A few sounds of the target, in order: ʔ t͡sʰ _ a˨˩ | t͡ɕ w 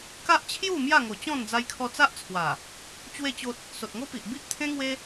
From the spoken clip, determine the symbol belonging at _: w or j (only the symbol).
w